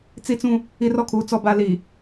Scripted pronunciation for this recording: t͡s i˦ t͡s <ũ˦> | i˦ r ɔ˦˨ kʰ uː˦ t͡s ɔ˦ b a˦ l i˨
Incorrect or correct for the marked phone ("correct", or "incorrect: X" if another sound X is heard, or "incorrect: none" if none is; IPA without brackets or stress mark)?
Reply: correct